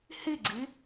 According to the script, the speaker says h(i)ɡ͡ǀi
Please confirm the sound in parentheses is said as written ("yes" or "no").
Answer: yes